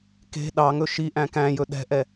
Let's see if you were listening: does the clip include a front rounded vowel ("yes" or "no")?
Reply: no